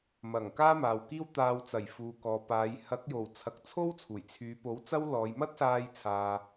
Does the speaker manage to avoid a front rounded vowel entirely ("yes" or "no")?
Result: no